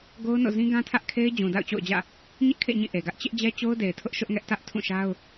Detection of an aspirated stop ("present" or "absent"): present